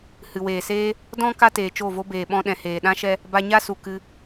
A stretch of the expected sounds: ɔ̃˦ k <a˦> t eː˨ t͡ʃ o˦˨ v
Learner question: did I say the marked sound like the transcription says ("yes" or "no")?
yes